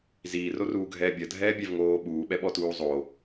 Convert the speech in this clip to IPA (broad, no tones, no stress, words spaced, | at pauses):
ziːroruː ɡʱɛːbʲɐ dʱɛːbʲɛvŋoː ɓuːɓɛ ɓɔtuːzˤo